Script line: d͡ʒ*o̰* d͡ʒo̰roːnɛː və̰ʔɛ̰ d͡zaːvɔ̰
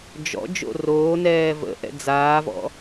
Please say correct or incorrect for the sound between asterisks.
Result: incorrect